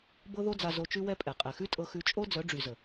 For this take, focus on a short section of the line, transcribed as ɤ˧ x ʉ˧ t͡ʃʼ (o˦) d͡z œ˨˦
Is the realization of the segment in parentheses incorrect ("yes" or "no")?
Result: no